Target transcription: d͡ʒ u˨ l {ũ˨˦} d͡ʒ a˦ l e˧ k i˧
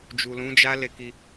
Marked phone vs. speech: correct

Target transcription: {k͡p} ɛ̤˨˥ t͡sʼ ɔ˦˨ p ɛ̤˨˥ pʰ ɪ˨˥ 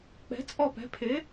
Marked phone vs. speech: correct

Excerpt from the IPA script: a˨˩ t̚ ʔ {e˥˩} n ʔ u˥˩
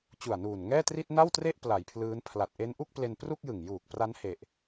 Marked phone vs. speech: incorrect: e˦˥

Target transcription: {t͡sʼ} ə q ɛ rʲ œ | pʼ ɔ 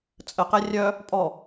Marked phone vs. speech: correct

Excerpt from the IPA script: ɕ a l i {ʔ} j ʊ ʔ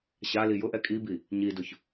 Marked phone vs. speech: incorrect: none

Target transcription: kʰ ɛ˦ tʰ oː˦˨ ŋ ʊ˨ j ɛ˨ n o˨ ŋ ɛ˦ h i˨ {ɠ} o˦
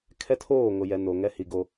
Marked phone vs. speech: incorrect: ɡ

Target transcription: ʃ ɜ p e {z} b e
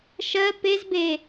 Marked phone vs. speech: correct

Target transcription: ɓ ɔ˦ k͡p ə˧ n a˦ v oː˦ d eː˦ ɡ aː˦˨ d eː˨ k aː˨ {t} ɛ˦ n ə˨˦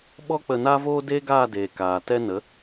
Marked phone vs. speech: correct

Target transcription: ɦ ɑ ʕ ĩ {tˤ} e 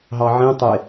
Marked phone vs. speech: correct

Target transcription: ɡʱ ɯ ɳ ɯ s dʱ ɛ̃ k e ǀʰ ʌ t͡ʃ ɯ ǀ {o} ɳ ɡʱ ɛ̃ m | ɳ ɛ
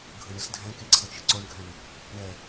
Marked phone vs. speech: correct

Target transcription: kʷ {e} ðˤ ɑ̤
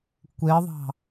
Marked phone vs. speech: correct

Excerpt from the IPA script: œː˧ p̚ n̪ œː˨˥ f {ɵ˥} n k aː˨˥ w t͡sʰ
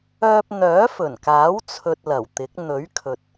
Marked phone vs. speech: incorrect: ɵ˨˩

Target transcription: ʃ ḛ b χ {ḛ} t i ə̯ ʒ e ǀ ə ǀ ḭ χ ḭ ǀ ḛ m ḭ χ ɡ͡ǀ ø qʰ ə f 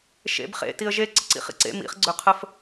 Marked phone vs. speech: correct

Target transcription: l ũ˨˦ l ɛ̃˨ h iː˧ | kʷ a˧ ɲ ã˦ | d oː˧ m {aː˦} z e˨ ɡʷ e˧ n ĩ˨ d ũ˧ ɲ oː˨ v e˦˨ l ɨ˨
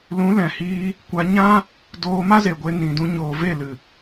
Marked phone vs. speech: incorrect: a˦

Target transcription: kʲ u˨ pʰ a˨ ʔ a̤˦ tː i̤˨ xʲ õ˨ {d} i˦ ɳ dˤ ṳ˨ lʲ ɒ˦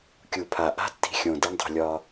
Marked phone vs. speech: correct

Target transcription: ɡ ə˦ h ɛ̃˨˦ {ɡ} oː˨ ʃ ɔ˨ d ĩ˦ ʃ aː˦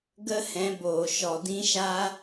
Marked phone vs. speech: incorrect: b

